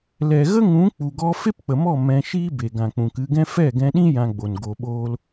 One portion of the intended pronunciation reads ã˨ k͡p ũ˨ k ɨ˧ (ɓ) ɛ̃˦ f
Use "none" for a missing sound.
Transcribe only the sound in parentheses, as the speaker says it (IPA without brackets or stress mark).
ɡ